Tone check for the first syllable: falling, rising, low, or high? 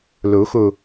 rising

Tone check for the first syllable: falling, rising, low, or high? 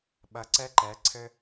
low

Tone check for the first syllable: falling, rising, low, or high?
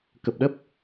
low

